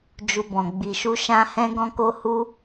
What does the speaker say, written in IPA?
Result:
d͡ʒ u˧ b ɔ̃˨ ɡ͡b i˨ ʃ u˧ ʃ ã˧ h ɛ̃˦ ɡ ɔ̃˦ k o˦ h u˦

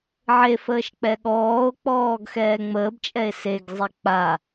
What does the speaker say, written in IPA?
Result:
ʕ e f əː ʃ k͡p ɛ ɠ ɔː o̯ k͡p ɔː ɡ x ɛː ŋ͡m əː b t͡ʃʼ ɛ e̯ s e ɡ zˤ e k͡p a

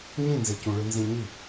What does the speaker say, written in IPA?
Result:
ɲ ĩ n z e c ũ ɭ ɯ n z ĩ ɲ i

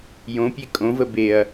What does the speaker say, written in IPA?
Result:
j õ pʲ e kʼ õ v ə b e ɐ̯

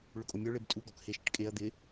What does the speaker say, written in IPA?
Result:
ɭ ʊ kʼ o mʲ ɔ ɭ e b tʼ u ɡ ɔ k h e ʃ ɪ ʈ kʼ e ɐ̯ d̪ ɪ

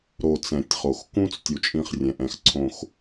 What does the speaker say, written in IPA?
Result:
ɾ o˨ t͡s ɛ̃˨ tʲ χ o˨ x k ũ˦ t͡s tʲ u˨ t͡ʃʼ ĩ˦˨ χ rʲ ɛ̃˨ ʔ ɛ̃˨ x ǀʰ õ˨ x

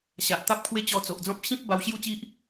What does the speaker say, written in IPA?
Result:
ɕ a˨ ʔ t̪ a˦ p̚ kʰ w e˦ t͡ɕ ɔ˧ t͡s o˨ ʔ d͡z ɔ̃˦ p̚ ɕ ĩ˦ p̚ b a˧ w ɕ j u˥˧ t͡ɕ i˦ ʔ

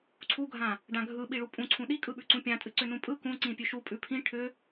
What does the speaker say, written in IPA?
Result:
ǀʰ u ɡʱ ã | ɖ ã ɡʱ ɯ ɓ i ɭ u pʼ ũ ǀʰ ũ ɗ i kʼ ɯ ɓ ʉ ǀ ũ pʲ ã tʼ ɨ ǀ ʏ n ũ pʼ ɯ k ũ ǀ ĩ pʲ ʉ ʃ u pʼ ʉ pʰ ĩ ʈʰ ʏ

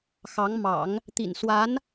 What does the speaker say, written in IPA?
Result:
x ɑ˧˥ ŋ m ɑ̰˨˩˦ ŋ | t̪ ḭ˨˩ n s w a˧˥ n

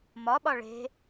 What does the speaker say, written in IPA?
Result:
m ɒ ɓ ɒ ɭ e̤

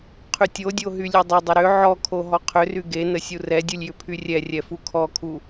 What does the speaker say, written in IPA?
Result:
qʰ y tʲ o dʲ o ɦ y lʲ e dˤ ɪ dˤ ə ɾ ʏ ʕ ɔ kʰ o ɦ ɔ qʰ ʏ r y ɡ e n ə sʲ u r ɛ dʲ u lʲ j ʏ pʰ y rʲ ɛ rʲ ɛ f u kʰ ɔ kʰ u

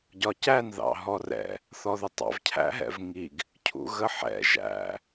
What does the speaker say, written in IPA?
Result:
ɟ ɒ c æ n ð ɑ̰ ɦ ɔ r ɛ̰ | θ ɔ ð ʊ tˤ ɑ̰ v cʰ æ̰ ɦ ɛ̰ v ŋ i ɡ | cʰ ṵ ɣ ə ħ ɛ̰ ʒ æ̰

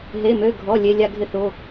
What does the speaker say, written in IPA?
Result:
ɦ e˩˧˩ m ø˩˧˩ ɡʱ ɔ˩˧˩ lʲ e˩˧˩ lʲ a˧ ɡʱ ɪ˧ θ o˩˧˩

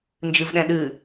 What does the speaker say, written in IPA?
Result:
n d͡ʒ ɨ v ɗ ɛ̃ ɗ ɨ

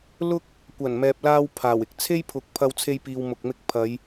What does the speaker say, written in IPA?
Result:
l ʊ˥ k̚ | kʷ ɐ˨˩ n m ɛː˨ p̚ l aː˧ w pʰ aː˨˩ w ɪ˧ k̚ t͡sʰ e˥ j pʰ ʊ˨˥ k̚ pʰ ɐ˧ w t͡sʰ e˧ j p iː˨ w m ʊ˨ k̚ m ɪ˧ k̚ pʰ ɐ˨˧ j

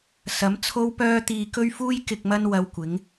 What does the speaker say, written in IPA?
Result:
s ɐ˨˥ m t͡sʰ o˧ w p œː˧ t̪ iː˧ k ɵ˥ ɥ f uː˥ j k ɪ˨ k̚ m ɐ˧ n w ɐ˧ w kʷ ɪ˨˥ ŋ

